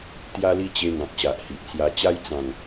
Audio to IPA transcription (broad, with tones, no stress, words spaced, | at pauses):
t̪ja˧li˧ t͡ɕe˧ŋã˨k̚ ɕa˨ʔhi˨ʔt͡sja˧t͡ɕa˦j t͡sã˨˩ŋ